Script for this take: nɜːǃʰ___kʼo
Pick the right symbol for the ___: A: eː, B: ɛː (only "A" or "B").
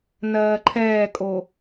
B